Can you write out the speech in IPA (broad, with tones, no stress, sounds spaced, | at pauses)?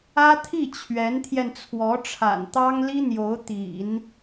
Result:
ä˥ t̪ʰ i˥˩ t͡ɕʰ ɥ ɛ˧˥ n t̪ʰ j ɛ˧ n t͡sʰ w ɔ˧˥ ʈ͡ʂʰ a̰˨˩ n t̪ ɑ˥ ŋ l i˥ n̪ j o˧˥ ʊ̯ t̪ ḭ˨˩˦ n